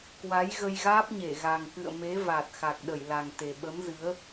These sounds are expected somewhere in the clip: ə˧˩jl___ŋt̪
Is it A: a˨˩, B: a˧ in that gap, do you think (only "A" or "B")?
A